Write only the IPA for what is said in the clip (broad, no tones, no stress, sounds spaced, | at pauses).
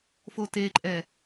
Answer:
f o t e ǃʼ ɛ